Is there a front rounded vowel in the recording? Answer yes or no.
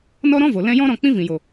no